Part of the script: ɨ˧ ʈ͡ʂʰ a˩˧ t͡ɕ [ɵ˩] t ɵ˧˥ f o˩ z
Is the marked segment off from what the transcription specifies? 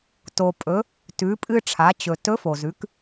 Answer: no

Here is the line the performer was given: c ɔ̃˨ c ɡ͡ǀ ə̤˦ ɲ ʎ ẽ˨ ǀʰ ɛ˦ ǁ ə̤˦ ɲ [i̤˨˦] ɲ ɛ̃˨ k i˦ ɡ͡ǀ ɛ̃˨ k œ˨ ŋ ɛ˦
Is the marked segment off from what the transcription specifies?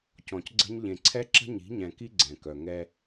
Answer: no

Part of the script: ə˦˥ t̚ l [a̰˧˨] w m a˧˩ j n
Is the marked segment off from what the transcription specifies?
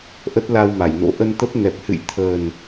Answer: yes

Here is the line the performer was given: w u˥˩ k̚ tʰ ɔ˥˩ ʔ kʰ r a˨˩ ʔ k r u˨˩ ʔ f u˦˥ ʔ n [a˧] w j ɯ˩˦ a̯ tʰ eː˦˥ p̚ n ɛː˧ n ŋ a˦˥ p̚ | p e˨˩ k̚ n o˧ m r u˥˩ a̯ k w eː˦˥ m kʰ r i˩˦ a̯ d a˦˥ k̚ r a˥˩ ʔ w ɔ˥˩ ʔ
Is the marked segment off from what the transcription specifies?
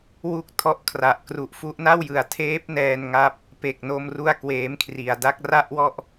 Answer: yes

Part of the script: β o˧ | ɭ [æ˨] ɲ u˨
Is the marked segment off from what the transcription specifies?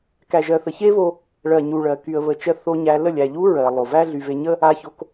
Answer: yes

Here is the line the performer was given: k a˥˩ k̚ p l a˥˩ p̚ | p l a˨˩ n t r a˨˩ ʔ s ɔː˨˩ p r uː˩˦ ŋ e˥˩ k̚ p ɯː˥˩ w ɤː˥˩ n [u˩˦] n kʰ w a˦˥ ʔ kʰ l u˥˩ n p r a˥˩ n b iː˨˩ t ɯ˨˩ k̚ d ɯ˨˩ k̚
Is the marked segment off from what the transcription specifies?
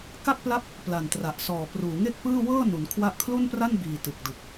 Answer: no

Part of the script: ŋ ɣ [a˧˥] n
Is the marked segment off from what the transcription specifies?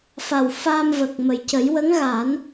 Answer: yes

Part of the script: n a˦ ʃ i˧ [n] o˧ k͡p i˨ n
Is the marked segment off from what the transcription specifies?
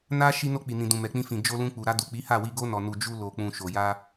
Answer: no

